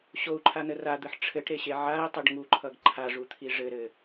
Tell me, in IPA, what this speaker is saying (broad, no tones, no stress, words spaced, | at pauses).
ɕou̯ǃʰanə rad̪ɘħ ʈ͡ʂʰɘʈɾeɕe ʕai̯tˤɘɖ ŋuǃʰʌɡ ǃʰaʐut̪ʰi ʐɘɾɘ